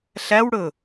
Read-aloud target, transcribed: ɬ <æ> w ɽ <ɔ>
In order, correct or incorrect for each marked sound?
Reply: correct, incorrect: ɵ

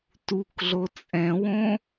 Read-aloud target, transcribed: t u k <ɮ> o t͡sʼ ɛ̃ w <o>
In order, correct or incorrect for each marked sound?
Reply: correct, incorrect: õ

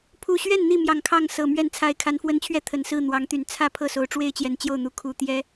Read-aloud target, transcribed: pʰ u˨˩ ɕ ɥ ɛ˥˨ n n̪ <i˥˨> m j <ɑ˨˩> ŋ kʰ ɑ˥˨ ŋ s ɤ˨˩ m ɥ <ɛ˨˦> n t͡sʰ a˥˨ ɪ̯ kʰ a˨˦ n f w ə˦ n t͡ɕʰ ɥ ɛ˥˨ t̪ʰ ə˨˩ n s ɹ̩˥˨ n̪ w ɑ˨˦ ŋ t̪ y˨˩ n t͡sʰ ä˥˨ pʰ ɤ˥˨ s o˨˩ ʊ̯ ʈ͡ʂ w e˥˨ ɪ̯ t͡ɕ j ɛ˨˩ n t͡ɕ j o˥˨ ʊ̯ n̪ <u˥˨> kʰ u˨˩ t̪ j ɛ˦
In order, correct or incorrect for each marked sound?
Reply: correct, correct, incorrect: ɛ˥˨, incorrect: u˨˦

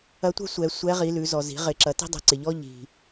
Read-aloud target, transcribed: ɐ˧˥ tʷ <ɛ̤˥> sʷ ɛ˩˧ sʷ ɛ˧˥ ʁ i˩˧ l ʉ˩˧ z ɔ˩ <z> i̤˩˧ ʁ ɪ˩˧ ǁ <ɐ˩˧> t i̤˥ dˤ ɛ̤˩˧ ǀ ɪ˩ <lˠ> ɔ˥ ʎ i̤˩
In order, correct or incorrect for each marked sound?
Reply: correct, correct, correct, incorrect: ʎ

